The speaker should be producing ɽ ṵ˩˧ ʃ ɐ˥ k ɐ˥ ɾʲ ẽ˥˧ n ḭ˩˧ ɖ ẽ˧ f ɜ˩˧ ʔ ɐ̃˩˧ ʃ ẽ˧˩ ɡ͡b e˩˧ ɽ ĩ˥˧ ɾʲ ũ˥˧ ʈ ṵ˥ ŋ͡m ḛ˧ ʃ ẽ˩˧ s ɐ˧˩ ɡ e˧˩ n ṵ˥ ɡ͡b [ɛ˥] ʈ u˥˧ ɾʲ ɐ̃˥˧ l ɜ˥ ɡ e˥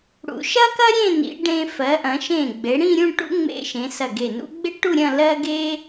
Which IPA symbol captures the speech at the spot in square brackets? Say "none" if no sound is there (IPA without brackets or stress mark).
e˥